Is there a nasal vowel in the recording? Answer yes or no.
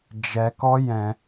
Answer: yes